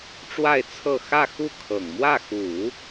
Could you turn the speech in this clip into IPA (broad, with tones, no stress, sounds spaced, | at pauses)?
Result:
ʈ͡ʂ w a˥˧ ɪ̯ t͡sʰ ɤ˥˧ x ä˥˧ x u˥˩ kʰ ɤ˨˩ ŋ m w ä˥˩ x u˨˩˦